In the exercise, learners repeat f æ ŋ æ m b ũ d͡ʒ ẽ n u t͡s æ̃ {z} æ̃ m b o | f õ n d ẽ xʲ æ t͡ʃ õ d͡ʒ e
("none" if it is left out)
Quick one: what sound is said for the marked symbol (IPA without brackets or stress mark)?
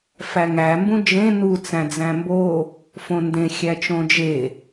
d͡z